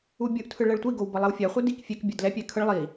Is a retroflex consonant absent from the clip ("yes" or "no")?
no